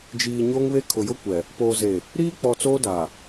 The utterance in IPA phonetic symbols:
d͡ʒ iː˨ ɲ oː˦ ŋ β e˦ kʰ ʊ˨ j ʊ˦ kʷ ɛ˨ | p oː˨ z e˨ | ɾ iː˦ k͡p ɔ˨ t͡s oː˦ d a˨

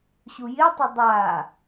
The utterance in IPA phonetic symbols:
ɕ u j ɪ tˤ ʏ dˤ a

